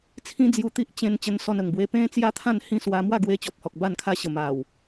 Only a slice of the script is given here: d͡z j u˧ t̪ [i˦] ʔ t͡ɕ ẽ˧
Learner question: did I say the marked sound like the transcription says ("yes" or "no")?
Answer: yes